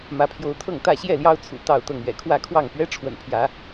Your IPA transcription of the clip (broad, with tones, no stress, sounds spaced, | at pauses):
m ä˨˦ pʰ j o˨˦ ʊ̯ t̪ʰ ɤ˥˨ ŋ t̪ ä˥˨ ɕ j ɛ˥˨ l j ɑ˦ ʊ̯ t͡sʰ ṵ˨˩ t̪ ɑ˥˨ ʊ̯ t̪ ɤ˥˨ ŋ ɥ ɛ̰˨˩ kʰ w ä˥˨ kʰ w ɑ˥˨ ŋ p ɥ ɛ˦ ʈ͡ʂʰ w ə̰˨˩ n pʰ j ä˨˦